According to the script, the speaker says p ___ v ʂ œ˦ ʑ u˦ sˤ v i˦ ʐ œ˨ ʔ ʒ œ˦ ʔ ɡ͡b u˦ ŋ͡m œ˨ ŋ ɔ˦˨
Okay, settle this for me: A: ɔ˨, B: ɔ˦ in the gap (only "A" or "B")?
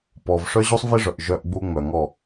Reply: A